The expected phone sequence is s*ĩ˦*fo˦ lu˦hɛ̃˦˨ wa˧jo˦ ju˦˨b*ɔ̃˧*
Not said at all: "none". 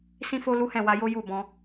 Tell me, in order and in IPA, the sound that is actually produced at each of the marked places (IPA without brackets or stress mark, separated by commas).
ĩ˦, ɔ̃˧